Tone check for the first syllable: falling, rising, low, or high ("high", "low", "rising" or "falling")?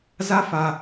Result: high